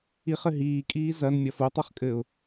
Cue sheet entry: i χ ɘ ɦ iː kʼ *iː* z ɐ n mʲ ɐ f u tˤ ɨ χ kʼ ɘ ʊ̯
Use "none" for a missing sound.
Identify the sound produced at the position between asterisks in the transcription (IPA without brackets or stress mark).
iː